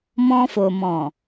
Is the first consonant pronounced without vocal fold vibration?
no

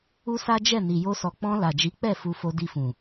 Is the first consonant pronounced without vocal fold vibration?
yes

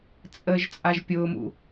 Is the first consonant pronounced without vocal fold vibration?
yes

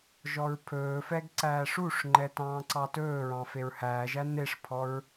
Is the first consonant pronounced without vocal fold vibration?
no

